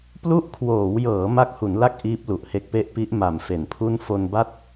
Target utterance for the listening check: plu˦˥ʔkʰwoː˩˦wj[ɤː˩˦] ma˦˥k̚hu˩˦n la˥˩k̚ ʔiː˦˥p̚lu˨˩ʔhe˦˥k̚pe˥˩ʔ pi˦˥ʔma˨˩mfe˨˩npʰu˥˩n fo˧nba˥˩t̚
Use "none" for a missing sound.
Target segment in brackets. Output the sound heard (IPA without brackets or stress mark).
ɤː˩˦